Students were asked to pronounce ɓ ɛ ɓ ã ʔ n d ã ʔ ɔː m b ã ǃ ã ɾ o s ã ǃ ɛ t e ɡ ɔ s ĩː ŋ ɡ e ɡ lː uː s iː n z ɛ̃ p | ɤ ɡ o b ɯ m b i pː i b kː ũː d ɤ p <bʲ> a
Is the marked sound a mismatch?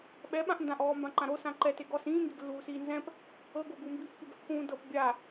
no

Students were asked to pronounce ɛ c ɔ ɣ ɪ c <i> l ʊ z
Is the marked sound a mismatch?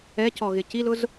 no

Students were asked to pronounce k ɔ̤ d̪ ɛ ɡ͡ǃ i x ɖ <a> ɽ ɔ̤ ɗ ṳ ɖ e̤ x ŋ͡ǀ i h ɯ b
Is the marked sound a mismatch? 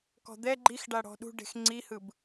no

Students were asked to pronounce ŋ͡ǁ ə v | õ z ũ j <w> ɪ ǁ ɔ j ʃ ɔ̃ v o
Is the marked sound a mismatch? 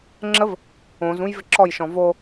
yes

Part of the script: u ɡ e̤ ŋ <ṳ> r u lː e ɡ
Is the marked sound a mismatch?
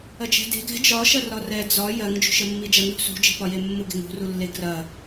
no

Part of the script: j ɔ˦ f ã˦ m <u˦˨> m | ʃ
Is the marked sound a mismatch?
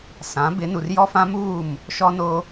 yes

